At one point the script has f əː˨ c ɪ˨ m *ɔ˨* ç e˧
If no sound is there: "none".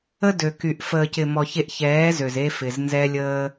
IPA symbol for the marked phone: ɔ˨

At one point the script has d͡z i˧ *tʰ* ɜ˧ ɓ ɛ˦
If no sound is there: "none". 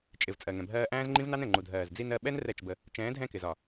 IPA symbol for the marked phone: n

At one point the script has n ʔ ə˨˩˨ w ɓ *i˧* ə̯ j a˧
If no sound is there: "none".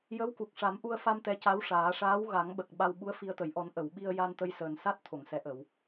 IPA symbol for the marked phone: i˧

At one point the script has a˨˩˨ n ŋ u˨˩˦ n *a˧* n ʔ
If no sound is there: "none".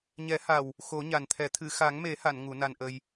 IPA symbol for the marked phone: a˧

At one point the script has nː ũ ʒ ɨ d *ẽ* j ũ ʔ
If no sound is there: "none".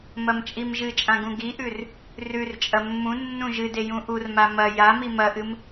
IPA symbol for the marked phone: e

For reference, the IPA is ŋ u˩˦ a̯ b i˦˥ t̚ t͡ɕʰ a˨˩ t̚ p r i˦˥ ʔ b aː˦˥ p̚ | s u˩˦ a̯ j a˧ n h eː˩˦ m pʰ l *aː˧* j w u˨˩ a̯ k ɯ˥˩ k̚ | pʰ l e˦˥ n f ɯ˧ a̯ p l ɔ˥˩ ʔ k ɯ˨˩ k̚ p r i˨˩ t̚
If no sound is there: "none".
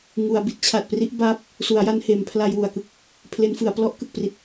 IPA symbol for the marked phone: a˧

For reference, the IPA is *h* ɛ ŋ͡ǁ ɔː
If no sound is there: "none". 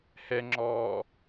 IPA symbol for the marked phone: h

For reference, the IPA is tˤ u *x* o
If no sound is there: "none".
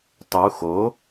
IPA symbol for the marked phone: x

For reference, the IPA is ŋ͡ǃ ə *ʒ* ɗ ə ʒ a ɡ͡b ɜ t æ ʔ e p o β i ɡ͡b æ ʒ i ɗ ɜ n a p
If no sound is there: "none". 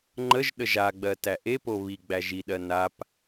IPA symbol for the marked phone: ʒ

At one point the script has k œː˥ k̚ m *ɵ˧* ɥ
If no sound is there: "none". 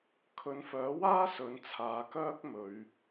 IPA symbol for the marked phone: ɵ˨˧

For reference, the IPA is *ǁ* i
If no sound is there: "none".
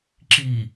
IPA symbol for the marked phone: ǁ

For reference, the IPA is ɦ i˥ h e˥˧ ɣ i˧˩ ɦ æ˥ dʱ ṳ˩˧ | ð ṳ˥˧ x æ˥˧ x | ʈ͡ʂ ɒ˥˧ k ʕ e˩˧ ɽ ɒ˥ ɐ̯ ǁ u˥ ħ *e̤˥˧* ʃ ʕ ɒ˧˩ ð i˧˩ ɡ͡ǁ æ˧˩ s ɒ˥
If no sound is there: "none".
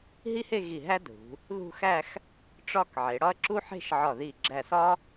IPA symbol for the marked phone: e̤˥˧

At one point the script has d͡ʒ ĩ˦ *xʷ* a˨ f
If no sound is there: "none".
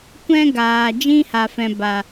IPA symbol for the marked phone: h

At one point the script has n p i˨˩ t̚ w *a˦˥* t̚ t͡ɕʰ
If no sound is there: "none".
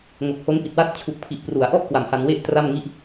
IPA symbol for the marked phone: a˥˩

